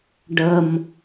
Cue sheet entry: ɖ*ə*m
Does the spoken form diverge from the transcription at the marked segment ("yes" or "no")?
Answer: no